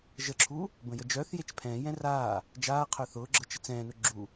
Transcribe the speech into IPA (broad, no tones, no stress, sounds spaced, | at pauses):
ʒ ə ǁʰ u | b ə̃ j ə d͡ʒ œː θ j e t͡ʃ pʰ ɛ̃ː j ɛ̃ r aː | d͡ʒ aː qʰ œ θ ʊː ɡ͡ǁ ɤ t͡ʃ ə t͡s ɛ̃ː n ʊ ɡ͡ǁ u